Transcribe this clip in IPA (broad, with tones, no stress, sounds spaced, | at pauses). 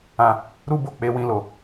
ã˧ | ɾ u˦ b o˦˨ k͡p e˧ w ĩ˧ l o˨